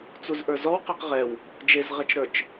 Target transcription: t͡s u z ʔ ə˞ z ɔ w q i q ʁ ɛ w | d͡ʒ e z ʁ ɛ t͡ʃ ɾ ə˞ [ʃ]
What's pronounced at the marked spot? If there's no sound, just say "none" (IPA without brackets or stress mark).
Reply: t͡ʃ